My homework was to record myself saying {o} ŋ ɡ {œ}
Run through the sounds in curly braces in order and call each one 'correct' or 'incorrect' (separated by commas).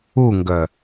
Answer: incorrect, correct